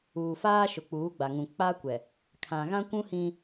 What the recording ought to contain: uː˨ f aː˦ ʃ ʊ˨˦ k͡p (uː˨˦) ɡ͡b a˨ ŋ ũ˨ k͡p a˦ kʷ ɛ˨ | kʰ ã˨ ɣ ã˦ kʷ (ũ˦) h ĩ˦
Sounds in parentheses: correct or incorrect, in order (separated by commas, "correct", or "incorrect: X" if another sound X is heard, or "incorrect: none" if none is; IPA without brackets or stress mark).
correct, correct